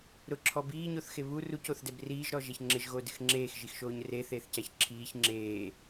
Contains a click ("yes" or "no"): yes